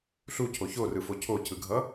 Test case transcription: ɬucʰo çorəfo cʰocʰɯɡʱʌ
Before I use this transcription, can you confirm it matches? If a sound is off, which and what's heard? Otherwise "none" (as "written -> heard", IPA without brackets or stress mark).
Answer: ə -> ɯ